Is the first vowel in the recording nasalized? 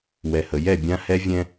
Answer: no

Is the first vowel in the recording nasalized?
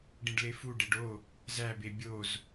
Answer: yes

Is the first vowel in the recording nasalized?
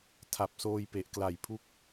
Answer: no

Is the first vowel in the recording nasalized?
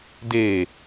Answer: no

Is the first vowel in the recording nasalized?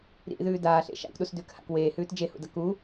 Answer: no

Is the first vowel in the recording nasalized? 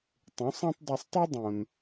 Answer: yes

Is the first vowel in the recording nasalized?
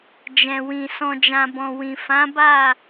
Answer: yes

